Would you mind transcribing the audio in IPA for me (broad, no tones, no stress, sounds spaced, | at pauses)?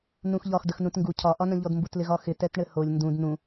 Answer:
n ũ x ʎ ɒ x d ə x n ũ t ŋ ɡ u cʰ ɒ ʔ ɒ n ə̃ ʎ ɔ d m b u t l ɪ ɣ ɒ x ɪ t ɛ t ɳ ɘ h o lʲ n d ũ d n ũ